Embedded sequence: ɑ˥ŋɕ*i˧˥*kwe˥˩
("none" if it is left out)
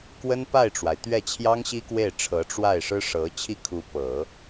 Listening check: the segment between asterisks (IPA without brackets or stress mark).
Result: i˥